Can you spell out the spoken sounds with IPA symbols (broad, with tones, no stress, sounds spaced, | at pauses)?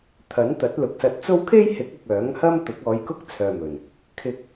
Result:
t̪ʰ ɐ˨˥ n t̪ ɐ˨˥ t̚ l ʊ˨ k̚ s ɐ˧ t̚ t͡s o˥ w kʰ e˥ j h ɪ˨˥ k̚ ʊ˨ k̚ œː˨˥ ŋ h ɐ˥ m t̪ ʊ˨˥ k̚ ɔː˨˧ j k ʊ˥ k̚ t͡sʰ œː˨ m ɵ˨˩ n | kʰ ɪ˧ k̚